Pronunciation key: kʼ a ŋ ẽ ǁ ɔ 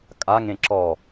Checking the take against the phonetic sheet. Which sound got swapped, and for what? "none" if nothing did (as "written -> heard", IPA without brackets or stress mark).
none